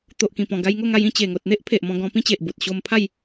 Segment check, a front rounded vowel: absent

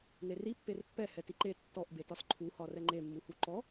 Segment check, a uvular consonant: absent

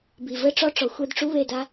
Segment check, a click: absent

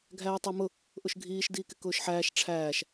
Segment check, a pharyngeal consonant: present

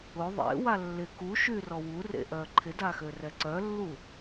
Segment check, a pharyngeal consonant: absent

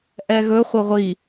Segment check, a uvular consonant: present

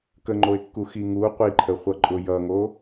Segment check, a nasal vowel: absent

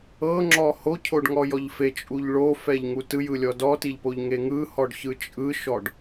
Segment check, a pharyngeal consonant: absent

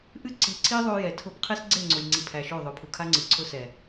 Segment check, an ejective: absent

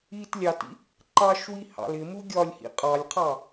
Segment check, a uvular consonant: present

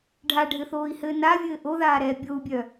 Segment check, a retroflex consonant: present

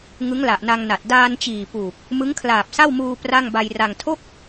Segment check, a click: absent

